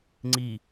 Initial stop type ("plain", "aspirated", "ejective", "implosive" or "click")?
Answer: click